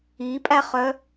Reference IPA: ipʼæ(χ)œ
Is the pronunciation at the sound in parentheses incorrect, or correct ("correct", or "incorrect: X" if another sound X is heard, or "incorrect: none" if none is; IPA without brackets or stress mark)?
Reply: correct